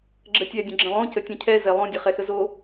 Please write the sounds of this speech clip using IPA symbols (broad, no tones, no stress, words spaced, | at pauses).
ɡ͡ǁətʲɛ dʲə̃ɡ͡ǁə̃lˠõ cətʲɛ̃cʰɛ zɛlˠõ dʲəχɛxəzo